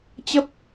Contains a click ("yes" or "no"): no